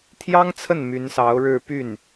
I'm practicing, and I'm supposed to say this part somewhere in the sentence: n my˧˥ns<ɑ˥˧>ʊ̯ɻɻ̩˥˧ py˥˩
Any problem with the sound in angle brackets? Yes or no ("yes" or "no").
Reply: yes